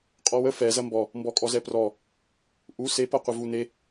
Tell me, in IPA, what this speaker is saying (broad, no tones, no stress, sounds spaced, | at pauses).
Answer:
qʼ ɔ w ə f ɛ z ɐ m b ɔ | m b ɔ kʼ ɔ z ɛ p r ɔ | ʔ u s e p ɐ qʷ ə v u n e